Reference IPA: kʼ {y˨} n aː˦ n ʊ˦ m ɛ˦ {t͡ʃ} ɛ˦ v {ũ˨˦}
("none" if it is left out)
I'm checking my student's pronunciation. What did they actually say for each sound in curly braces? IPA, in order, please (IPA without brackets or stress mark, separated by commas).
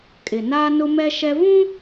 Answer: ɪ˨, ʃ, ũ˦